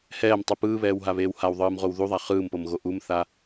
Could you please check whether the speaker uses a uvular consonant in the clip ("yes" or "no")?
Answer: yes